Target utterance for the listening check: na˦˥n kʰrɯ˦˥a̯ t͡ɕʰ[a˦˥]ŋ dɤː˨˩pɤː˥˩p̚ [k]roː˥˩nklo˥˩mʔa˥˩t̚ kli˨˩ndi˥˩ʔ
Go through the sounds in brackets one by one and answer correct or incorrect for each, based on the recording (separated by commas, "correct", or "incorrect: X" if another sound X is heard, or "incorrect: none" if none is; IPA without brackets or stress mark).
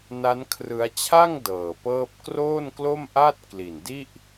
incorrect: a˥˩, correct